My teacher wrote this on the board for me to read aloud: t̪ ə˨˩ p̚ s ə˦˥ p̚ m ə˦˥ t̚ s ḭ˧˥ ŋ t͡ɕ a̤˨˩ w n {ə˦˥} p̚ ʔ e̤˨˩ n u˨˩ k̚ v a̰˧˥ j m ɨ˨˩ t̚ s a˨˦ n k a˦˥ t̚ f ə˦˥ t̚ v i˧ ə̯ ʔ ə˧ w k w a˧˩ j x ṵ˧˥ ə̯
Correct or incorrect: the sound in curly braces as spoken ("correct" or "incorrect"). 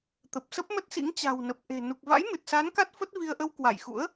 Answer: incorrect